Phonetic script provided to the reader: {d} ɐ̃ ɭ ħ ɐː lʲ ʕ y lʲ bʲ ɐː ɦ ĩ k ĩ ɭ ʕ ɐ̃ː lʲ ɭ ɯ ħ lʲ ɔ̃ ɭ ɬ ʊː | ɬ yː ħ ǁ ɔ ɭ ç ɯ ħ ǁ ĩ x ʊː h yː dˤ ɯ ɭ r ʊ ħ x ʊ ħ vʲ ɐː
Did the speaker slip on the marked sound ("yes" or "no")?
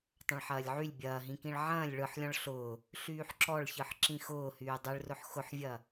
yes